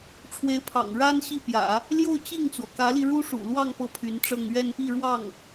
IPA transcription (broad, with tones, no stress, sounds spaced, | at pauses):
ʈ͡ʂʰ w e˧˥ ɪ̯ pʰ ɑ̰˨˩ ŋ ɻ a˥ n ɕ i˥˩ p j ä̰˨˩˦ | l j o˥˧ ʊ̯ t͡ɕ i˥˩ ŋ t͡s w ɔ˩ k ä˧˥ l i˧ ɻ u˥ ʂ ṵ˨˩ l w ɑ˥˧ ŋ p ɤ˥˩ pʰ y˧˥ n ʈ͡ʂ ɤ˥˧ ŋ ɥ ɛ˥˧ n p i˥˧ ɻ w ɑ˥˩ ŋ